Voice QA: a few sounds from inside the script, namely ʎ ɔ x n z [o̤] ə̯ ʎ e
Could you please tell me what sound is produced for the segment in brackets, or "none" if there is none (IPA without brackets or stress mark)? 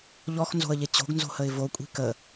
o̤